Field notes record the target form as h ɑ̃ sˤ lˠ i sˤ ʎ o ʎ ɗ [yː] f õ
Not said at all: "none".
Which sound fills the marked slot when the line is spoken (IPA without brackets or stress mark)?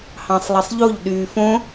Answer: yː